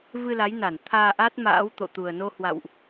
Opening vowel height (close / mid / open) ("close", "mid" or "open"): close